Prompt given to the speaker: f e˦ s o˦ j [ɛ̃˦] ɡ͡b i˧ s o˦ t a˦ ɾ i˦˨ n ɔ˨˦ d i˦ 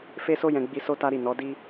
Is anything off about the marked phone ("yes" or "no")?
yes